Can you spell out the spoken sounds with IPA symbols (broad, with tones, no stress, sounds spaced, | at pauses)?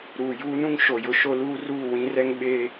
ɾ uː˨ j uː˦ n ũ˦ ŋ ʃ o˨ j ʊ˦ ʃ o˦ l uː˦ r uː˦˨ w ĩ˦ r ɛ˦ ŋ ɓ eː˦